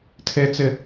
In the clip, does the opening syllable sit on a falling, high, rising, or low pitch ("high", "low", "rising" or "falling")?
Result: high